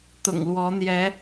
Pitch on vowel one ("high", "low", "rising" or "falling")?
low